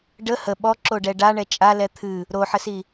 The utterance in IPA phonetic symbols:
ɖə hə ɓɔǁoɖɛ ɖaɳɛ t͡ʃʼalɛ t̪ʰɨ | ɾoħəsi

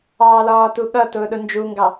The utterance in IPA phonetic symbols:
ɑːlɒːtuɠʌ tʊːɗʊnd͡ʒuŋɡɑ

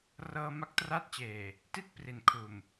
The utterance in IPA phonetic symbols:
rɤː˧ ma˦˥k̚tra˦˥t̚t͡ɕeː˨˩ | ti˥˩t̚pri˨˩nkʰuː˨˩m

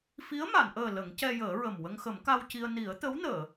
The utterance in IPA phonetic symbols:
fi˧˥ə̯ma˨˩˨nʔəː˨˩ lə˨˩˦ŋcɛ˧jəː˨˩˦ɹə˨˩m wə˧ŋxə˨˩˦mka˧wci˧ə̯ ni˨˩˦ə̯t̪ə˧˥wnəː˨˩˨

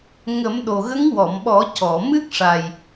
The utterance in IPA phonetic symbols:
ŋə˨˩˦mɗo˨˩ɣə˧˥ŋ wɔ˨˩˨mɓɔ˨˩˦ cɔ˨˩˨mɨ˦˥k̚ ʂa˨˩j

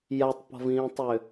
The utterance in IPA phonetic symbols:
jatˤpɔ̤vĩːtˤʏ

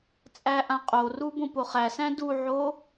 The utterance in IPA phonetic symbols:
t͡sʼæʔãqʼoru bõpoχæsæ̃ duʕo

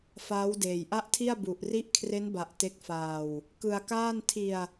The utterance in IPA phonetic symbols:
faː˦˥wdeː˨˩jʔa˥˩ʔtʰi˥˩a̯ bu˨˩ʔri˦˥ʔkʰre˦˥n ba˨˩ʔ te˦˥k̚faː˧w | kɯ˧a̯kaː˥˩n tʰi˧a̯

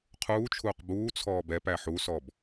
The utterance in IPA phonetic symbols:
qʰuːt͡ʃʰuːq buːt͡sʰɔːb ɛpæ ħusɔb

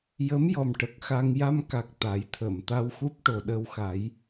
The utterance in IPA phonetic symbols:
jə˧˥mjɔ˨˩m ʈə˨˩k̚xa˧ŋ ja˧mka˨˩k̚ t̪a˨˩˦jt̪ʰə˨˩˨m t̪a˧wxu˦˥p̚ ʈo˨˩ɗəː˧wxa˨˩˦j

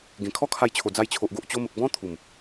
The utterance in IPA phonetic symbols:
ɡẽ˨˩kʰɔ˦kʰa˧jt͡ɕʰo˨˩ d͡za˧jt͡ɕʰo˨ʔɡo˨ʔ t͡ɕo˧mə˨k̚ bɔ̃˦ t̪ʰu˨˩m

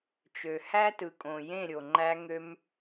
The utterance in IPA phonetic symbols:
t͡ʃø˨hæ˦tɯ˨kʼõ˨ jẽ˦˨ɾʲo˨ ŋ͡ǃæ˧ŋø˧m

